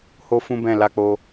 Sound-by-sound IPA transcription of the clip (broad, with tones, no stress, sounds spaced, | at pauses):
h o˦ f ũ˦ b ɛ̃˦˨ l a˧ k͡p o˧